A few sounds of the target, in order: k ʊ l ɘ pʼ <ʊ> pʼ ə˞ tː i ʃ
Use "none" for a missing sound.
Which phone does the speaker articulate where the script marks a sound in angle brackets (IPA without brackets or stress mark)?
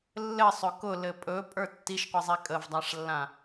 ɵ